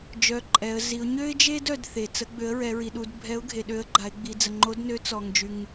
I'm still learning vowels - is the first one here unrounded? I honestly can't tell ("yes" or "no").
no